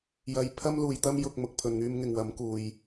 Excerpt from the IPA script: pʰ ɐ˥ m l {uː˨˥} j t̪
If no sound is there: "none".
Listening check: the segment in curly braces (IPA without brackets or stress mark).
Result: uː˨